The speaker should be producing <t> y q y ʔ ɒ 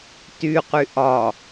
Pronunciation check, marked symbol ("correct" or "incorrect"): correct